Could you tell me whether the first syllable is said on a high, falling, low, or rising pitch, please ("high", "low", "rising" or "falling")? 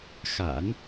low